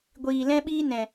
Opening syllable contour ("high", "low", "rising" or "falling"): low